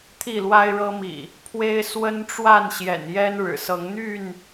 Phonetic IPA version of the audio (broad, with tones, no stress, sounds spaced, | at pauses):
t̪ʰ i˥˨ l w a˦ ɪ̯ ɻ ɤ˦ m ḭ˨˩ | pʰ w e˦ ɪ̯ s w ə˦ n ʈ͡ʂ w a˥˨ n ɕ j ɛ̰˨˩ n j ɛ˦ n ɻ ɻ̩˨˩ s ɤ˨˦ ŋ n̪ y˥˨ n